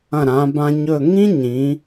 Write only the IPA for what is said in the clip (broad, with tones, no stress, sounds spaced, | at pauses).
ɐ̃˧˩ ɾ ã˩˧ b ã˧ ɲ ɵ˥˧ ŋ ĩ˥ ɲ ĩ˩˧